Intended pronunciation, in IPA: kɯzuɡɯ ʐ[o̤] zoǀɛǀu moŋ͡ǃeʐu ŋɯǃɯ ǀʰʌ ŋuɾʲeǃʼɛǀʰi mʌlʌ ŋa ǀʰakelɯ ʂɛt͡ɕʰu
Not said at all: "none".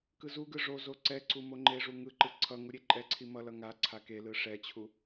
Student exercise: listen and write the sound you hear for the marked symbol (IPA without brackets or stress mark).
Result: o